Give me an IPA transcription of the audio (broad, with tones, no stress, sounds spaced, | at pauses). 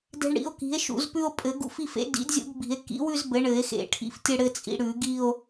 d e̤˧ ɳ ɽ ḭ˩˥ o̯ k i̤˩˥ e̯ ʃ ṵ˨˩˦ z p ʉ˧ o̯ pʼ ɘ˨˩˦ ɡ ṵ˧ f i˥˧ f ḛ˩˥ d ḭ˩˥ d zʲ ṵ˧ ɡ b i̤˨˩˦ e̯ k ḭ˩˥ w ʉ˥˧ z b ɘ˩˥ ɳ ɘ˨˩˦ e̯ x ḛ˨˩˦ ʈʰ ḭ˧ f tʲ ɘ˥˧ ɽ ɘ˥˧ t͡sʼ ḭ˧ ɽ ʉ˨˩˦ ɡ i˥˧ o̯